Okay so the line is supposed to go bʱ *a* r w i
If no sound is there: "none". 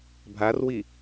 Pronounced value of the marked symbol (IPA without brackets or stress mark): a